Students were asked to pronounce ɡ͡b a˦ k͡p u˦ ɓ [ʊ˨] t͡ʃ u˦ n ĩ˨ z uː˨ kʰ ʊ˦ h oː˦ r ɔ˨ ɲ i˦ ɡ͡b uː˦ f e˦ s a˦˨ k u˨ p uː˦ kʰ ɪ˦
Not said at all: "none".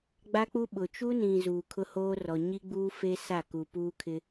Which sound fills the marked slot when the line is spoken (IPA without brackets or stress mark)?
ʊ˨